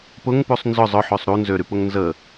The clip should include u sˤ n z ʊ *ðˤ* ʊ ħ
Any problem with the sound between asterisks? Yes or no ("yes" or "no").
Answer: yes